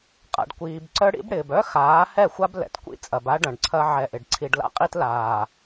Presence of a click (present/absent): present